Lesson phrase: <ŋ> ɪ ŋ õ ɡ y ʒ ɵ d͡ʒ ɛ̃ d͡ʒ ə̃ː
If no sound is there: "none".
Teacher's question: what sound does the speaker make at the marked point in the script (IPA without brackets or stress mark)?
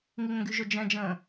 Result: ŋ